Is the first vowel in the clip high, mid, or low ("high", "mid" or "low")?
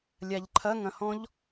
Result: low